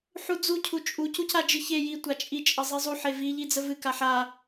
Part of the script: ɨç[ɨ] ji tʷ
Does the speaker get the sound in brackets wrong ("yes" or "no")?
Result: yes